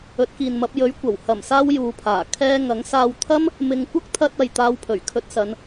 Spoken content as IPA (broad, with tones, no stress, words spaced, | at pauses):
ɵ˨˥t̚kiː˨nmɐ˨˥p̚ jɵ˨˥ɥkʷɐ˨˩w hɐ˨˩msaː˧w juː˨pʰaː˨˩ kʰɛː˧ ŋɐ˨˥ŋsaː˧w t̪ʰɐ˥m | mɪ˨ŋkʷɐ˥k̚t̪ʰɐ˧t̚ɐ˨j t̪aː˧wpʰɵ˨˩ɥkʰɵ˧t̚sɐ˨˧n